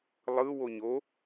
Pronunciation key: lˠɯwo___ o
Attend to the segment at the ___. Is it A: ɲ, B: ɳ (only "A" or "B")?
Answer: A